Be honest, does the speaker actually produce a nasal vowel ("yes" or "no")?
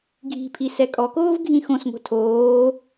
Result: yes